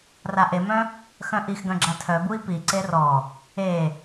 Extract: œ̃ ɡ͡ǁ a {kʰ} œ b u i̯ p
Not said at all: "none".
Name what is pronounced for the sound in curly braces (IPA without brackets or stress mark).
tʰ